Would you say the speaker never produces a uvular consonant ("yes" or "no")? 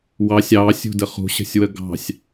no